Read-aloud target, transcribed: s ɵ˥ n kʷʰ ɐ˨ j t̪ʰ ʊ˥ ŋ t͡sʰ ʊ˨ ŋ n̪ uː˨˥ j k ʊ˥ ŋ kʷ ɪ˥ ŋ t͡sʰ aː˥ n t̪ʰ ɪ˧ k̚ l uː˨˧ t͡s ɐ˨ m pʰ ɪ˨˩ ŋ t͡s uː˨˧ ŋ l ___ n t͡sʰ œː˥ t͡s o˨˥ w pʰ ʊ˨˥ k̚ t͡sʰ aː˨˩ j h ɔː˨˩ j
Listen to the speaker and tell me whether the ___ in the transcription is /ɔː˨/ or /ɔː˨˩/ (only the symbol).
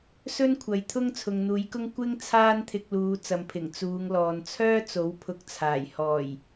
ɔː˨